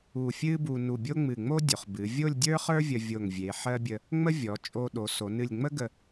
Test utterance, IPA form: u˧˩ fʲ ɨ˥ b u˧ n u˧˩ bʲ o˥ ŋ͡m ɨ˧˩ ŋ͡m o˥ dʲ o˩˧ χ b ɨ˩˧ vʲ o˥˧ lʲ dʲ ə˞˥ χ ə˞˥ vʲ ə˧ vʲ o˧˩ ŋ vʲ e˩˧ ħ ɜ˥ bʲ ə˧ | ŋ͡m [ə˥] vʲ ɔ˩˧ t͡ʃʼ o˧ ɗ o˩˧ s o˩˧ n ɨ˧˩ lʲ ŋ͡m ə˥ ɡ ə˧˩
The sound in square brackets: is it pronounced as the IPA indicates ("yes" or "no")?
yes